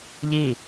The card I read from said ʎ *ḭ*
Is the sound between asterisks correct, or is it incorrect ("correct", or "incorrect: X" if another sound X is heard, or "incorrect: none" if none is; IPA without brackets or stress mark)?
incorrect: i